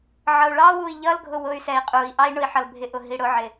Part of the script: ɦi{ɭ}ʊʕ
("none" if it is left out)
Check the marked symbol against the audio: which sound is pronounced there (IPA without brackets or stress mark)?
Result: ɽ